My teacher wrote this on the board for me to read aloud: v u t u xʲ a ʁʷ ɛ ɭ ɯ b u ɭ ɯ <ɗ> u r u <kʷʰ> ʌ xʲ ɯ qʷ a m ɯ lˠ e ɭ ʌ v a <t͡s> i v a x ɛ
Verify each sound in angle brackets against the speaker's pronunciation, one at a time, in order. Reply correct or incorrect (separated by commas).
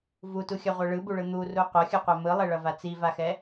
incorrect, incorrect, correct